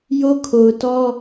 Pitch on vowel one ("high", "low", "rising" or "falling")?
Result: high